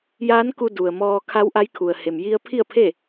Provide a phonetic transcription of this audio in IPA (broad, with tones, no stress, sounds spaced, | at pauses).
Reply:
j aː˧˥ n k u˧ d u˩ ə̯ m ɔː˧ kʰ a˧˥ w ʔ a˧˥ j kʰ u˩ ə̯ h e˩ m j i˧ ə̯ pʰ i˥˨ ə̯ pʰ e˥˨